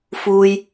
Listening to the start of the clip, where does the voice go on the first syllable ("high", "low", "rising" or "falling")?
low